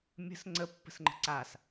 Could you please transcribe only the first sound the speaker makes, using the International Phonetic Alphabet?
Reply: mʲ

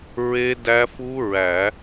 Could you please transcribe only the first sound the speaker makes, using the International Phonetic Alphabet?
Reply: ɹ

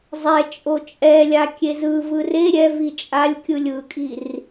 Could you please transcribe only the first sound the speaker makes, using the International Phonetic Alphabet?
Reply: zˤ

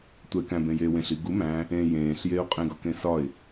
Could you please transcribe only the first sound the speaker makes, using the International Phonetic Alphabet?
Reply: tʷ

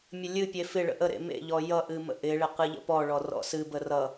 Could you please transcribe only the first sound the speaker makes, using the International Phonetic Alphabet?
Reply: mʲ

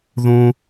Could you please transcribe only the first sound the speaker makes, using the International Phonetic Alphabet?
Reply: ð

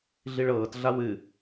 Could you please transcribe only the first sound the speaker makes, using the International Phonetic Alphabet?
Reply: ɮ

